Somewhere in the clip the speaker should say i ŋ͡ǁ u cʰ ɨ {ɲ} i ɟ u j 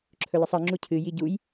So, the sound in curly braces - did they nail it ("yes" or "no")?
no